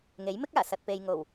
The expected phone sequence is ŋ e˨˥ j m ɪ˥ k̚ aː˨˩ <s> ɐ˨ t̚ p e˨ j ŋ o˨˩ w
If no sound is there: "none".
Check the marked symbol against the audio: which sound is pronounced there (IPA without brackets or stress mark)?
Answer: s